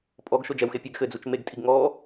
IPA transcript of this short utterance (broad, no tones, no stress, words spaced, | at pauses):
pʼɔɡʃo d͡ʒɛwxe pʲɘɡ xɘd͡zut͡ʃ meɡtʼiɡ ŋɔ